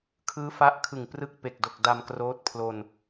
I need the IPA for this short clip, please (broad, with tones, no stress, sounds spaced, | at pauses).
kʰ ɯː˦˥ f a˦˥ ʔ kʰ ɯ˨˩ ŋ p r ɯ˦˥ k̚ p e˨˩ k̚ d o˨˩ k̚ d a˧ m k r oː˦˥ t̚ pʰ l o˧ n